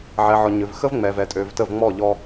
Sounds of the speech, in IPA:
ʕ ɛ˨ ʕ ɔ˨ ɲ ø˨ v x ə˦ v ŋ͡m ɛ˨ v ɛ˨ tʼ ø˨ v t ə˦˨ v ŋ͡m ɔ˦˨ ʎ ɔ˦

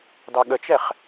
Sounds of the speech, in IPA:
d ɑ ɠ ə t͡ʃ ɛ χ

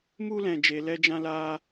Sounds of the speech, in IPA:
m u˦ l ɛ̃˧ d͡ʒ e˧ l ɛ˦ d͡ʒ ã˦ l aː˦

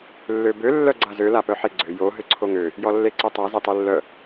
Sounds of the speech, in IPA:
lː ø b ø lː œ ɡ͡ǀ a z ø l a p œ ħ e ɡ͡ǀ ø j o ɦ ø ǀʰ o ŋ ø | j ɔ lː e ǀ o tˤ a z e tˤ ɛ lː œ

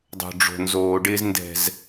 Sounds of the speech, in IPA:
dˤ o̤˨ ɖ͡ʐ o̤˨ n z oː˨ ɖ ɪː˦ z n d ɛ̤˨ z

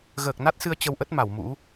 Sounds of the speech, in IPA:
ɣ əː˨˩ k̚ n a˦˥ t̚ s ɨ˧ ə̯ t͡ɕ ə˧ w ʔ ə˦˥ t̚ m a˧˩ w m ṵ˧˥

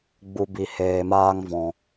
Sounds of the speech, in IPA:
ɡ͡b u˧ b i˧ h eː˧ m aː˦ ŋ v ɔ̃˧

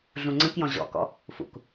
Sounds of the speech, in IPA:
ɮ ũ ŋ͡ǀ ə̃ k j ɔ̃ ʑ ɔ̰ k ɔ̰ | f ṵ k

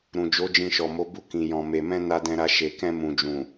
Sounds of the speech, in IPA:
ɾ ũ˨ d͡ʒ o˨˦ d͡ʒ ĩ˧ ʃ ɔ˨ m o˨˦ b u˧ k ĩ˨ j ɔ̃˨ m e˨ m ɛ̃˧ n a˧ d ɛ̃˧ ɾ a˧ ʃ e˨ k ɛ̃˧ m ũ˨ d͡ʒ ũ˨

